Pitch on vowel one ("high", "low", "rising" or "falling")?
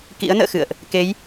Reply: rising